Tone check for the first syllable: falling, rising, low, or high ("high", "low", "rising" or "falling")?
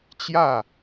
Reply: falling